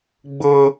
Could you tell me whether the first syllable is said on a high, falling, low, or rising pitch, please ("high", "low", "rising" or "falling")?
high